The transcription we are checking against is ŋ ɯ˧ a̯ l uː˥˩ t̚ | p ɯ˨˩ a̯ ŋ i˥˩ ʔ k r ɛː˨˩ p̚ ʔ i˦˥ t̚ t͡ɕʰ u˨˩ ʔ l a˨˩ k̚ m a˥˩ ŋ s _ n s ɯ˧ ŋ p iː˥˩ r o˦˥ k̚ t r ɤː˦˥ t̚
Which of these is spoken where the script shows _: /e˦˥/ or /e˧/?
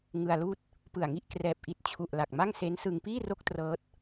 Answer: e˦˥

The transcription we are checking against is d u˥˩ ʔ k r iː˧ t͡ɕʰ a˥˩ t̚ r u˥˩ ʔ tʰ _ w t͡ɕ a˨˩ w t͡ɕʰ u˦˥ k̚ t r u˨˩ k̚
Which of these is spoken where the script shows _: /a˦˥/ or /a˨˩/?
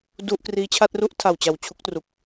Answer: a˨˩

